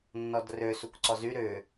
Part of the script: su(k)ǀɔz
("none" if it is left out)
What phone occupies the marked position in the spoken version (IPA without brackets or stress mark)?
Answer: k